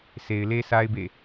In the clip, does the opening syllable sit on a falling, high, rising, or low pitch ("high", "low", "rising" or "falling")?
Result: low